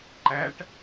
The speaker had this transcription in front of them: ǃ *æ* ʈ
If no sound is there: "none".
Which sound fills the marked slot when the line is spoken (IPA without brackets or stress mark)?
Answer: æ